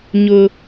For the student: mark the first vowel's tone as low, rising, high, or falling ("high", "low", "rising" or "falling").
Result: high